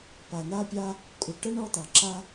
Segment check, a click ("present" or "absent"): present